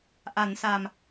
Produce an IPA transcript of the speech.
ʔa˩˦nsa˨˩m

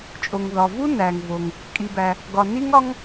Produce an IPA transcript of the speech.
t͡ʃʼo˩ŋðɒ˩vu˥ næ˩ŋvo˩ŋ | kʼi˩bæ˩ | ɡɒ˩ ni˥ŋɒ˥ŋ

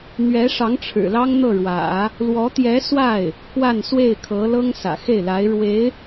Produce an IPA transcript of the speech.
n̪ɥɛ˧˥ʂɑ˧˥ŋ ʈ͡ʂʰɻ̩˨˩lɑ˥ŋn̪ɤ˥˩ɻwä̰˨˩˦ | lwɔ˧˥t̪jɛ˧˥ swa˥˩ɪ̯ | kwa˥˧nswe˥˩ɪ̯kʰɤ˧˥ lɤ˥ŋ sä̰˨˩xe˥˩ɪ̯la˧˥ɪ̯ ɻwe˧˥ɪ̯

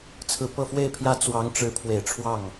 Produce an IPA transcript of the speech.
t͡sʰɹ̩˨˩pɤ˥˧fwe˥˩ɪ̯pʰjä˥ t͡swɑ˧˥ŋʈ͡ʂɻ̩˧˥ pʰwe˨˩ɪ̯ʈ͡ʂʰwɑ˥˩ŋ

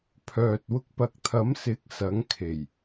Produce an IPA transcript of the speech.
pʰœː˨t̚ wʊ˧k̚pɐ˨˥k̚t̪ʰɐ˨˥msɪ˨˥k̚ sɐ˨˥ŋkʰe˨˩j

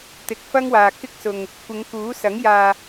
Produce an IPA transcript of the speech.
t̪ɪ˨˥k̚fɐ˥ŋwaː˨ kɪ˥k̚sʊ˨ŋ | kʷɪ˨˧ŋ kuː˨˥sɐ˨˥ŋ jaː˨

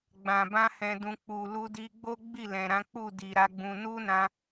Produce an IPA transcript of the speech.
ɡ͡bã˨bã˧ hɛ̃˨dũ˨ k͡pu˨ lu˧di˧ɡ͡bo˦ ɡ͡bi˦˨lɛ̃˨ɾã˨˦ k͡pu˦˨di˨ ɾa˨˦ɡ͡bũ˧ nu˦nã˧

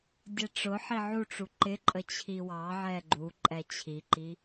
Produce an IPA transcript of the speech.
dʲɛʈ͡ʂʊħi ʕuʈ͡ʂu ǃɪǃʼə t͡ɕʰiwɑʕɛ ɡ͡ǃu ǃʼɛt͡ɕʰiǃi

